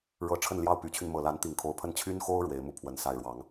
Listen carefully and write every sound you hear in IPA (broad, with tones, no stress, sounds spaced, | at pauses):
ɻ ɤ˧˥ ʈ͡ʂʰ ə˥˧ n l j ɑ˥˩ ʊ̯ p y˧˥ t͡ɕʰ y˧ n m ɤ˨˩ l a˧˥ n t̪ i˨˩ ŋ kʰ o˧˥ ʊ̯ pʰ ə˥ n t͡ɕʰ y˥ n x o˥ ʊ̯ ɻ w e˧˥ ɪ̯ m u˥˩ pʰ w ə˧˥ n s a˥˩ ɪ̯ ɻ w ɑ˧˥ ŋ